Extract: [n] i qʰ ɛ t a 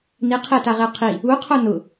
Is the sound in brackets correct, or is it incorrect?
correct